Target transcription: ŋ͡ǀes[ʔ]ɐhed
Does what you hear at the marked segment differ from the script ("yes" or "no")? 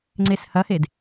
yes